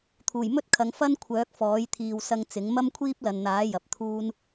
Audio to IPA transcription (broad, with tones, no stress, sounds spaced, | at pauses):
t̪ʰ uː˨˩ j m ɵ˥ t̚ kʰ ɐ˨˧ ŋ f ɐ˥ n kʷʰ œː˨˥ k̚ f ɔː˨˥ j t̪ʰ iː˨ w s ɐ˧ ŋ t͡s ɪ˨˥ ŋ m ɐ˥ m kʷʰ iː˥ p̚ l ɐ˨ n n̪ aː˨˥ j ɐ˨ p̚ t̪ʰ uː˥ n